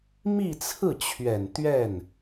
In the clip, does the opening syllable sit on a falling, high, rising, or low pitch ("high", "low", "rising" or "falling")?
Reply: falling